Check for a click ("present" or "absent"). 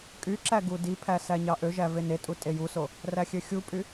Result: present